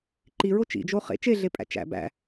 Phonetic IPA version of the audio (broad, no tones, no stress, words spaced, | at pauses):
ǃiɹo t͡ʃḭd͡ʒo χḛ t͡ʃeɮepʼæ̰ t͡ʃæ̰ bæ̰